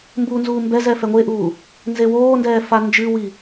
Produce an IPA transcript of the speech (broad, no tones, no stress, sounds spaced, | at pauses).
m b u n z uː m b ɛ z ɛ f ɛ ŋʷ e ʔ uː | n z e w oː n d ɛː f a n d͡ʒ ɨ w i